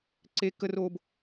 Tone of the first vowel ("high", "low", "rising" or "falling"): high